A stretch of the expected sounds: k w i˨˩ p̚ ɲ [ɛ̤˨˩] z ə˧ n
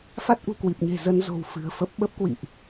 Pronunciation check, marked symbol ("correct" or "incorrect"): incorrect